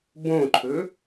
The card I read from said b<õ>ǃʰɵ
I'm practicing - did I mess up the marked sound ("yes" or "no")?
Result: no